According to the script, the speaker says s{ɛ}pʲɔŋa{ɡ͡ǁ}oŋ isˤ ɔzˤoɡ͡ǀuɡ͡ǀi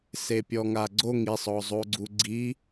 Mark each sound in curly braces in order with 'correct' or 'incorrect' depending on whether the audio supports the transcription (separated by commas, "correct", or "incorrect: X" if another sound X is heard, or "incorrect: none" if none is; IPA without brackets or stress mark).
incorrect: e, incorrect: ɡ͡ǀ